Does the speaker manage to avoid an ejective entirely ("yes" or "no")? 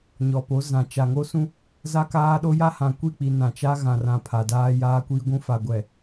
yes